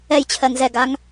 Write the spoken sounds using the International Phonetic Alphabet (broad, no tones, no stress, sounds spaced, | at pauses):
ɛ j t͡ɕʰ ɜ ŋ z ɛ ɡ a ŋ